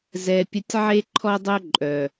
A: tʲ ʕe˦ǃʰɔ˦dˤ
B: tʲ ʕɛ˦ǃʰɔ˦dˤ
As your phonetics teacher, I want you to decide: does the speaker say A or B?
A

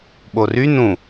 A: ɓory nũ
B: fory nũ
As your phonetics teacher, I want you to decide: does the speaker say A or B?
A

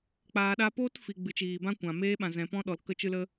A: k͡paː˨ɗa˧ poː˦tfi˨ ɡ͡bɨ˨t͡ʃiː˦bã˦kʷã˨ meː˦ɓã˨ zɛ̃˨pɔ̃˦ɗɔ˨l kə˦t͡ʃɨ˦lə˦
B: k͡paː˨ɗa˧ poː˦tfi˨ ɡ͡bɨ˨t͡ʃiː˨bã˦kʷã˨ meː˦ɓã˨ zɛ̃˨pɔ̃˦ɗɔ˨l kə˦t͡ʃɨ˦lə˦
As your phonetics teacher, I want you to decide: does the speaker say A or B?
B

